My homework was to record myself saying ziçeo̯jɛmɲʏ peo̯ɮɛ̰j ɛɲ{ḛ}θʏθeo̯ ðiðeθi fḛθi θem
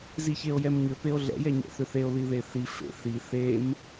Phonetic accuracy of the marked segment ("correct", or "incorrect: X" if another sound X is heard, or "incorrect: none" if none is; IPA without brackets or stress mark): incorrect: ɛ̰